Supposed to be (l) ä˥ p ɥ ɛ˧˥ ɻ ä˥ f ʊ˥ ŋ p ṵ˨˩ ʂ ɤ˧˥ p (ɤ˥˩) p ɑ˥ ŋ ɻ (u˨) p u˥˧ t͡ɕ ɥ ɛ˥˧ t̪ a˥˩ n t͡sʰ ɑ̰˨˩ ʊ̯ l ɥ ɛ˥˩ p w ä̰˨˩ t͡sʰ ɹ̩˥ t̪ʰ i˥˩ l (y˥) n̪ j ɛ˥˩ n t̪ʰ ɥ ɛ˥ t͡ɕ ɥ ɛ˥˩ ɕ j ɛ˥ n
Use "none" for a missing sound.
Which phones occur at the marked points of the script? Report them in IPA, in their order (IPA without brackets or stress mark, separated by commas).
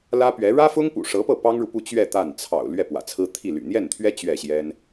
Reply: l, ɤ˥˩, u˨, y̰˨˩